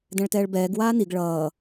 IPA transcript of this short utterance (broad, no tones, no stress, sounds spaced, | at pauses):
d ɛ̃ ɭ t ɛː ɭ b ɛː ɡ w aː n i ɡ ɭ ʌː